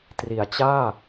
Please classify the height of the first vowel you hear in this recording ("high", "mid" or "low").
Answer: high